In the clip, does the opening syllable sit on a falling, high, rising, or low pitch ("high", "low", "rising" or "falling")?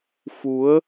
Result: rising